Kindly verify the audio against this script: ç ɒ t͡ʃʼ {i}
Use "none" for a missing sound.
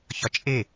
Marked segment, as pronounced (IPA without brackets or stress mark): e